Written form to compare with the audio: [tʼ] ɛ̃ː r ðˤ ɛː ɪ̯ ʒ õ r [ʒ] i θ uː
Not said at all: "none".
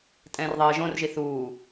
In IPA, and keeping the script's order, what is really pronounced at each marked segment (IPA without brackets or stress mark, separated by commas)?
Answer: tʼ, ʒ